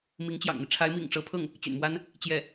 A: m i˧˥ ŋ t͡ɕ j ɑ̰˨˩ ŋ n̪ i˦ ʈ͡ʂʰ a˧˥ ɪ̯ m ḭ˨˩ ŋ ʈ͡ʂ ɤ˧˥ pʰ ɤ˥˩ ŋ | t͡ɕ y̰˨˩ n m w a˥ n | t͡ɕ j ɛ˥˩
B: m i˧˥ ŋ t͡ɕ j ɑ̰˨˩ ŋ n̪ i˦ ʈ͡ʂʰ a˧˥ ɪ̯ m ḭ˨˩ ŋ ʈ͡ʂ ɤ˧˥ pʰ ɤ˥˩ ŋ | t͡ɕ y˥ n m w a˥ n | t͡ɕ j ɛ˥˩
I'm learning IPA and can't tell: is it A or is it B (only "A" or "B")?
A